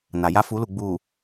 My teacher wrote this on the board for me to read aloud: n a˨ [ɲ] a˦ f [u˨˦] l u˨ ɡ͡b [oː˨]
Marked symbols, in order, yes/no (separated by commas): no, yes, no